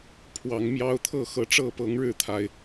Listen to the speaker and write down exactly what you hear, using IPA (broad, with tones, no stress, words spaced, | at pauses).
pʰwɑ˨˦ŋmjɑ˦ʊ̯ t̪ʰɤ˥˨xɤ˨˦ ʈ͡ʂɤ˥˨pɤ˨˦ŋ ɻɻ̩˥˨t̪ʰa˨˩ɪ̯